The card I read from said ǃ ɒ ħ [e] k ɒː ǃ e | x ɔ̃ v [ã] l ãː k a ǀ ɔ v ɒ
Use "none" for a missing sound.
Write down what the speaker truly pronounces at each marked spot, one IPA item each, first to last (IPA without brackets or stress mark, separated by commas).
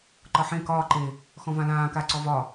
ẽ, ã